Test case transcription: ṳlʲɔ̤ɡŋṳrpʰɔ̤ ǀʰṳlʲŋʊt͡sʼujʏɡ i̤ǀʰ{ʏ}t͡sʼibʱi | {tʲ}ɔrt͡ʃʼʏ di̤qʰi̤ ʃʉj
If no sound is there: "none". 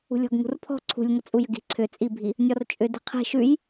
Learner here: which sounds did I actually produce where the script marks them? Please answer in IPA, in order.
ʏ, nʲ

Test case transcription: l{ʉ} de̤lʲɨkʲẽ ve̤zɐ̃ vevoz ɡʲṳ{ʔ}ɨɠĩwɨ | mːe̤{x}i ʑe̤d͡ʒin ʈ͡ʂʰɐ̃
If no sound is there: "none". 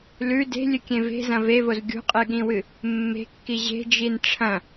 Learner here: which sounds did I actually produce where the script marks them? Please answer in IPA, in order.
ʉ, qʼ, kː

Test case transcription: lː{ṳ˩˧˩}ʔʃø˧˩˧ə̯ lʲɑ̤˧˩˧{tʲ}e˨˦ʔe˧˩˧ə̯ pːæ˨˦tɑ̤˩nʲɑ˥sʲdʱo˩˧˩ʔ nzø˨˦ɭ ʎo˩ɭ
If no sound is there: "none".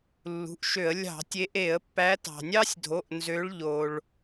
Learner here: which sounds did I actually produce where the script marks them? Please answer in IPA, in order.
ṳ˩˧˩, tʲ

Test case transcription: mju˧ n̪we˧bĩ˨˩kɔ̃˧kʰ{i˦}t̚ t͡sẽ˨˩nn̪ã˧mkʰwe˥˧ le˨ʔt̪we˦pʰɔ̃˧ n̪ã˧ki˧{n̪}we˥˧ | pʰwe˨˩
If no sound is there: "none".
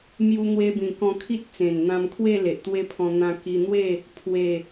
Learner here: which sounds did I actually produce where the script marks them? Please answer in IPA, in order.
i˦, n̪

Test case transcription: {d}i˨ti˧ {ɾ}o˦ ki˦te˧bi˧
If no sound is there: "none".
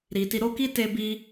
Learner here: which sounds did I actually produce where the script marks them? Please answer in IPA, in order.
ɾ, ɾ

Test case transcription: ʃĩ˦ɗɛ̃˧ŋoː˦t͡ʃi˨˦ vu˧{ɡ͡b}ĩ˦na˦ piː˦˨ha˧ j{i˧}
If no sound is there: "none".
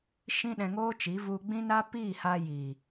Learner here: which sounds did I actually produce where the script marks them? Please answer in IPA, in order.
ɡ͡b, i˨

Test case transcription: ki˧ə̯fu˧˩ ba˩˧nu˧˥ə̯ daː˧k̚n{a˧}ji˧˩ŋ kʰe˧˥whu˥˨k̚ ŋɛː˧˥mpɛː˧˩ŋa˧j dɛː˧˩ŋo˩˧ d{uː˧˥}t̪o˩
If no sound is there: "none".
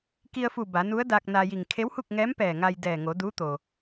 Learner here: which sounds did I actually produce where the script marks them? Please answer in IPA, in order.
a˧, uː˧˥

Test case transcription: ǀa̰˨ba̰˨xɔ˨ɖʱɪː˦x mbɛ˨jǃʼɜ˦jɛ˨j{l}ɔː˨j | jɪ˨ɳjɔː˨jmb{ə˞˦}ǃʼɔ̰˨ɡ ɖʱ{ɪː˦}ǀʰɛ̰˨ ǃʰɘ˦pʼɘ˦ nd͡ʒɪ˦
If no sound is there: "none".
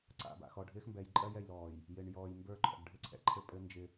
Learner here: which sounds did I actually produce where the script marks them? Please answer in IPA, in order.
l, ə˞˦, ɪ˦

